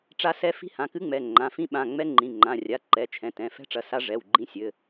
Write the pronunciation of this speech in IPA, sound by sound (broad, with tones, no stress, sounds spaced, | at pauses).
ʈ͡ʂ a˦˥ s ɛ˦˥ f i̤˦˥ h ã˩˧˩ k ɨ˦˥ ŋ͡m ɛ˩˧˩ ŋ͡ǃ ã˩˧˩ f ĩ˦˥ ɓ ã˩˧˩ ŋ͡m ɛ˦˥ ŋ͡ǃ ĩ˩˧˩ ŋ͡ǃ ã˩˧˩ rʲ a˩˧˩ ǃ ɛ˩˧˩ t͡ʃʰ ɛ̃˩˧˩ t ɛ̃˩˧˩ f ɛ̤˦˥ ʈ͡ʂ ɐ˩˧˩ s a˦˥ ʐ ɛ˩˧˩ w ɡ͡ǃ ĩ˦˥ sʲ ɘ˩˧˩